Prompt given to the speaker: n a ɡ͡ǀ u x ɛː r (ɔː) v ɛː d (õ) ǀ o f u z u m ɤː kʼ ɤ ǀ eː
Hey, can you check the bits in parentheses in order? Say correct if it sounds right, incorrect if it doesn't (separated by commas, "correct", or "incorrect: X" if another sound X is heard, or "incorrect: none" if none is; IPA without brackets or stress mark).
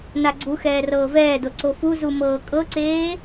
incorrect: ɤː, incorrect: o